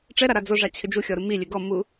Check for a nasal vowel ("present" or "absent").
absent